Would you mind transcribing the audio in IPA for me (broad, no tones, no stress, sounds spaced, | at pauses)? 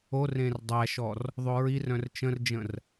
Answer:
o r ẽ r dˤ æ ʃ ɔ r | ðˤ o ɹ i r œ̃ r t͡ʃ ə̃ r d͡ʒ ə̃ r